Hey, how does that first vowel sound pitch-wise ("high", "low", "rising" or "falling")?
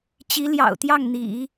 rising